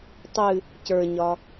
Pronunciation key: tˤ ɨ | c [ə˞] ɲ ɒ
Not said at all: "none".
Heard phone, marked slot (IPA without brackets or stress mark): ə˞